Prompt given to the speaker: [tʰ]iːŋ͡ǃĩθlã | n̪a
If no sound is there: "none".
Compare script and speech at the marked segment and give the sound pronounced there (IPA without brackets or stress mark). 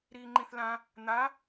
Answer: ɾ